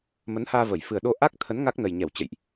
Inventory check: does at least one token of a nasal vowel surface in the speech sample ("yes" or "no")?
no